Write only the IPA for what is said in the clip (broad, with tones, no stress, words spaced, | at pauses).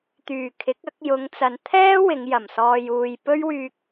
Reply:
t̪yː˨˩kʰɪ˨˥k̚ɐ˨˥k̚ jʊ˨˧ŋt͡sɐ˨n t̪ʰɛː˥ wɪ˨˧ŋ jɐ˨˩msɔː˧juː˧j pɵ˥ɥwyː˧k̚